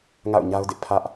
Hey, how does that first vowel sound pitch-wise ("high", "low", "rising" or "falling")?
falling